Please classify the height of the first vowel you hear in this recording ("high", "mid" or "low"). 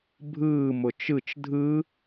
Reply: high